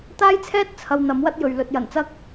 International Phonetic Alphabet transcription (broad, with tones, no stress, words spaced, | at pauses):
t̪aː˥jt͡sʰɛː˥t̚ t͡sʰɐ˧wn̪ɐ˨˥mwɐ˥t̚jɵ˨ɥ lɵ˨t̚jɐ˨˩nt͡sɐ˥k̚